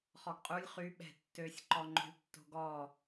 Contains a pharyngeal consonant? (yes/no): no